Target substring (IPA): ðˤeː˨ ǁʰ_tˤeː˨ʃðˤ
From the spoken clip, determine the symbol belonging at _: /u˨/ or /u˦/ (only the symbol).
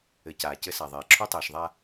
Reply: u˦